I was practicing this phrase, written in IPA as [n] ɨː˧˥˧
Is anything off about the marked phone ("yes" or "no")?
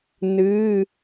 no